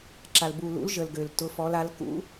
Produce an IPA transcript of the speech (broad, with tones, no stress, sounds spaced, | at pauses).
ǁ a˨ l b u˨ l ṵ˨˦ l ʒ ə˨ l ɡ ø˨ l t ʊ˨˦ f ɔ˨˦ l a˨˦ l k ṵ˨˦